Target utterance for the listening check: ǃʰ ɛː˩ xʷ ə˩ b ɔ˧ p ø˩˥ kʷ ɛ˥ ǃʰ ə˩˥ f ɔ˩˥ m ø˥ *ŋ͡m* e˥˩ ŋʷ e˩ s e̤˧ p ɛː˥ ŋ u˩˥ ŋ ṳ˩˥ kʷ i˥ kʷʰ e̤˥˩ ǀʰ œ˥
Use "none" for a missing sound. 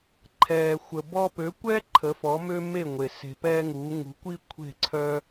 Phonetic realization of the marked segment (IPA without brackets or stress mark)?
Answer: m